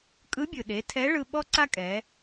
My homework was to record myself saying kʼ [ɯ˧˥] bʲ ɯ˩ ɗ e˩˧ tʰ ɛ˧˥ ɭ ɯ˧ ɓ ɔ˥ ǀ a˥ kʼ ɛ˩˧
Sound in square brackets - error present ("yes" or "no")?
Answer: no